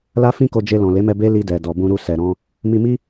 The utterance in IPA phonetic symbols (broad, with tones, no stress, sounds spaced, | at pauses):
l a˦ f ĩ˦ k o˧ d͡ʒ e˧ l ɔ̃˨ l e˨˦ m ɛ˧ b e˦ l i˧ d ɛ˨ d ɔ˨ b ũ˧ ɾ u˧ s ɛ˨ ɾ ɔ̃˧ | m i˧ m i˦